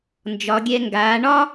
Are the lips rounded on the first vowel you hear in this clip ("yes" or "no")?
yes